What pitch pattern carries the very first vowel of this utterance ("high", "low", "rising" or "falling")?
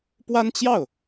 high